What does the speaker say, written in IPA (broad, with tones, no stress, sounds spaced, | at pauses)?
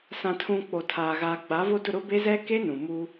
s ã˨ tʰ ũ˨ k͡p o˨ tʰ aː˨ ɣ aː˨ ɡ͡b a˨˦ v o˦ d ʊ˦˨ ɾ ʊ˦ b e˦ z ɛ˦ k e˦ n ũ˨ m u˦